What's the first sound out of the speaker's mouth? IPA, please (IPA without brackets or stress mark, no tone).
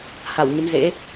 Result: h